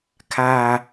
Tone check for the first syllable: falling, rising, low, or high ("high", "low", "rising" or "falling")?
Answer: low